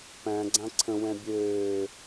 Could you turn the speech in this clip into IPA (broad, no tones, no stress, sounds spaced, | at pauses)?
p æ̃ ɡ͡ǀ ã ǀʰ ə̃ w ɛ̃ bʲ øː